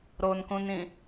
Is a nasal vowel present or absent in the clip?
present